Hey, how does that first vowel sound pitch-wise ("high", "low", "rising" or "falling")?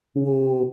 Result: low